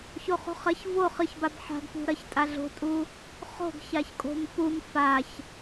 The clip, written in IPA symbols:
ç o χ ṳ χ ɐ ç v o χ ɨ ç b a b ħ a̤ ɡ p ṳ ɾ ɐ ç tʼ a ɮ o̤ tʼ u | χ o̤ ɡ ç a ç kʼ o̤ m p u m f a ç

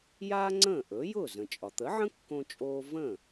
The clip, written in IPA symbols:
j aː˥ ŋ͡ǀ ə̃ː˥˩ ʔ ɵ˩˥ j ʊː˥˩ z ə̃˩ t͡ʃʼ ɒ˩ t̪ ə˩˥ ʕ ə̃˥ kː õ˧ t͡ʃʼ oː˧ v ə̃˥˩

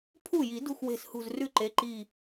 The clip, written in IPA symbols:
pʰ u˥˩ j i˨˩˦ d ṳ˥˩ x w e̤˧˩ s h ṳ˧˩ z r ʉ˥˧ ǃ e˩˧˩ ǃ i˧˩

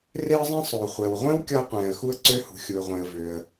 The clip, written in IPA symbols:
r e˥ ə̯ zˤ ĩ˥ sˤ o˩ χʷ ɛ˩ w ʁʷ ẽ˥ w kʲ ɒ˥ ə̯ qʷ ɛ̃ː˩ ə̯ x u˥ ə̯ ǀ ø˥ h ṳ˩ xʲ u˩ ə̯ ʁʷ ẽ˩ ə̯ v ø˩ ə̯

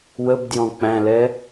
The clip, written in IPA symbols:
w ə b d j ɔ̃ k͡p æ̃ l ɛ

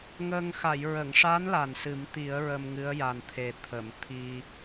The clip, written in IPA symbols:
ŋ əː˧ ŋ x a˨˩˨ j ɹ ə˨˩˨ ŋ ʂ a˧˥ n l a˨˩ n s ɨ˨˩˦ m t̪ i˨˩˦ ə̯ ɹ ə˧ m ŋ ɨ˧˥ ə̯ j a˨˩ n t̪ʰ e˨˩ t̪ʰ ə˨˩˨ m t̪ʰ i˧

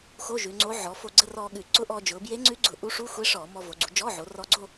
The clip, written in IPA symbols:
x o˧˥˧ ʒ ʉ˩˧ ŋ͡ǀ o˧˥ ʕ ɔ˩˧ f o˧ ɡ͡ǀ ə˧˥˧ r ɔː˧ ɠ ʉ˧˩˧ ǀ ʊ˧˥ ʔ ɔː˧ d͡ʒ ʊː˩˧ b j e˧˥ ŋ͡ǀ ʉ˧˥ ɡ͡ǀ ʊ˧˩˧ ʔ u˧˥ ʂ u˧˥˧ xʷ e˧˥ ʂ ɔː˧˩˧ m ɔ˧ v o˩˧ ɡ͡ǀ u˩˧ d͡ʒ ɔː˧˥˧ ʕ o˩˧ r ɔ˧ ɡ͡ǀ o˥˧

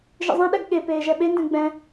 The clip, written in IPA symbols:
ʒ ḭ zˤ ɛ̃ ɗ ɛ ɡ ɠ e p eː ʒ ɛ ɓ e n d ɛ̃ ɡ͡b ɛ̃

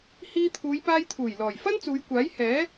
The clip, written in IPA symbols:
h iː˧ t̪ʰ uː˨˧ j p aː˧ j t̪ʰ uː˨˩ j l ɔː˨˩ j f ɐ˥ n t͡s uː˨˧ j kʷ aː˨˥ j h ɛː˨˥

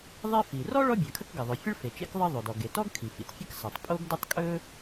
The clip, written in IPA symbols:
ðˤ e˥ f i˩ r ɔ˥ ɭ ɔ˥ bʲ ɜ˩ kʰ ə˥ k ɡ ə˩ ðˤ ɵ˩ fʲ ə˥ ɭ f e˩ t͡ʃ ḛ˥ k ðˤ ɜ˥ ðˤ o˩ d ɔ˩ ɡ e˩ t ɔ˥ ɡ kʰ i˩ f ḭ˩ t fʲ ə˥ k s ɜ˩ tˤ pʼ o˥ ɡ d ʊ˥ tˤ kʼ ɵ˥

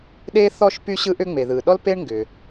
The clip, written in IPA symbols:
ɗ e˥ θ ɔ˥ ʃ p y˥ ɕ ɯ˥ ʔ ʏ˥ ŋ͡m e˩ ð ɯ˩ ɗ ɔ˥ l p e˥ ɳ ŋ ɡ ʏ˩

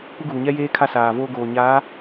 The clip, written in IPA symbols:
kʷ ɪ˦ ɡ uː˨ ɲ ɛ˦ j eː˦ kʰ a˦ s aː˨ v oː˦ ɡ oː˨ ɲ aː˨˦

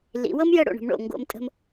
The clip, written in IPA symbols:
l ḭ˩˧ w ɤ˥ m j ə˥˧ ɽ o̰˧˩ ɳ ə̤˩˧ m ɳ o̰˧˩ ŋ ɡ o̰˧ m tʼ ə̤˧ m

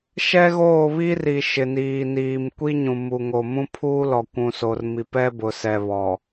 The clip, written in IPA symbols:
ʃ ɛ˦ ɣ oː˦˨ β i˦ r i˨ ʃ ɪ˨ n iː˨ n iː˨ m kʷ i˦ ɲ ũ˨ m u˨ ŋ o˨ m ũ˦ pʰ uː˦ l ɔ˨ kʷ ũ˨ s o˨ r m i˨ p ɛ˦ b ʊ˨ s ɛ˨ β ɔ˨

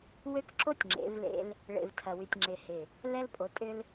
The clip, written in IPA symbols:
w ø˦ k ǁ o˦ tʲ ŋ͡ǁ ḛ˨˦ v l ḛ˦ l | ɭ ḛ˨ v tʰ ɐ˨ w y˨ tʲ ŋ͡ǁ ɪ˨ h ɪ˨ | l ɛ˦ l pʼ o˨˦ tʼ ʏ˦ l

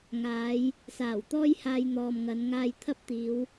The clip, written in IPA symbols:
ŋ aː˨˧ j | s aː˨˩ w t̪ ɔː˥ j h aː˧ j n̪ ɔː˨ m ŋ ɐ˨˧ n ŋ aː˧ j t̪ʰ ɐ˥ p̚ t̪ iː˨˧ w

